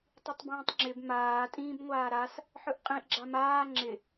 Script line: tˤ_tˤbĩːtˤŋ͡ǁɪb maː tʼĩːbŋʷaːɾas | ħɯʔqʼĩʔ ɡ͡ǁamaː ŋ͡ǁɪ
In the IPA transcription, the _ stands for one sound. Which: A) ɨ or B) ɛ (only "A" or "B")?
A